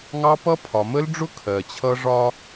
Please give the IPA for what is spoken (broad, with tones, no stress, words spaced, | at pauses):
ŋɑ˦pʌ˦ pʰɒ˨mə˦lɖ͡ʐʊ˦ kʰɜ˨t͡ɕʰʌ˦ ʐɒ˦